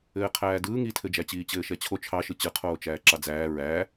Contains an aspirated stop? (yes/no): yes